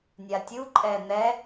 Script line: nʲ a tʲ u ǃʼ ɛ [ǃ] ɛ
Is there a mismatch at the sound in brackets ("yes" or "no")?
yes